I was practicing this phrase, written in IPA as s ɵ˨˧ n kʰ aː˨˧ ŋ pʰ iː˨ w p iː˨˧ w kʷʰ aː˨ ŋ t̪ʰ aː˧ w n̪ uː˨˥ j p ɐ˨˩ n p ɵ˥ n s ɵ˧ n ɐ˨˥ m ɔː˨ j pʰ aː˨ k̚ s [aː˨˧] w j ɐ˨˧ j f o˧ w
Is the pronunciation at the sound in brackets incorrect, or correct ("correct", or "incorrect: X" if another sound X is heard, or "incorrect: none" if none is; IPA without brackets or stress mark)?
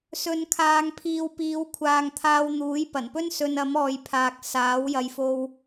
incorrect: aː˨˥